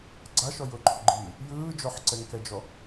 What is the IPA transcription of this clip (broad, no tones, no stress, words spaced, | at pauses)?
ɡ͡ǀaʃɔ jʊǃʰʊɡ͡ǃiː | jɯː d͡ʒɔħǀɛŋkɛd͡ʒɔ